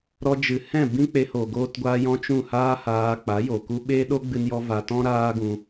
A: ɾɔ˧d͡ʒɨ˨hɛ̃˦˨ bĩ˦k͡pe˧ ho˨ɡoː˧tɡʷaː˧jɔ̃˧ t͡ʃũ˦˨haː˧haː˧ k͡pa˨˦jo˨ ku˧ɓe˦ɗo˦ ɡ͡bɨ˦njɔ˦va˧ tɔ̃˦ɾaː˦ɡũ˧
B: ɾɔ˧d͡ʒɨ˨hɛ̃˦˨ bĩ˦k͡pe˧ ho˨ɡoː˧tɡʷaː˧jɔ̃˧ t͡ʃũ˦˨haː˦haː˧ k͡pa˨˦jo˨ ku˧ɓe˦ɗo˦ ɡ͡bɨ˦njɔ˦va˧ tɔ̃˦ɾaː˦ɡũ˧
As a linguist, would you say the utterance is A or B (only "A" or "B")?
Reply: B